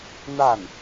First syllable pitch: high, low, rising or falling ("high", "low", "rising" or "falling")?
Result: falling